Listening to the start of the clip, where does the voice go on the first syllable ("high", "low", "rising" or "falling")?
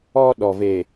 high